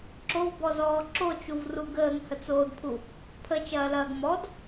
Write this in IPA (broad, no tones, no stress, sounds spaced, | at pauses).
ǁ o v b ɔ z ɔː ǁ o t͡ʃ u v r u ɡ əː ŋ h ə t͡s oː d pʰ u | pʰ ə t͡ʃ ɐː l ɐː ɡ m ɔ d